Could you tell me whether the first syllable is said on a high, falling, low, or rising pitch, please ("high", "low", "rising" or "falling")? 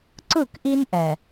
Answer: falling